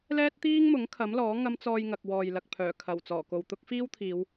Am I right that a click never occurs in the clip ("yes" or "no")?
yes